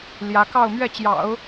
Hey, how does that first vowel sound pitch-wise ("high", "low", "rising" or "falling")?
rising